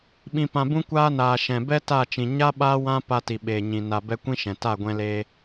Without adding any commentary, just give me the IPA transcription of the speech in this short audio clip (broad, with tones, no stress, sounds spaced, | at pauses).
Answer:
ɓ ĩ˨ p ã˨ b ũ˧ kʷ aː˦ n aː˨ ʃ ɛ̃˨ b ɛ˦ t a˦˨ t͡ʃ ĩ˨ ɲ a˦ ɓ aː˦ w ã˦ p a˧ t i˨ ɓ eː˨ ɲ ĩ˨ n a˨ b ɛ˧ kʷ ĩ˦ ʃ ɛ̃˨ t a˦˨ ɡʷ ɛ̃˧ l eː˧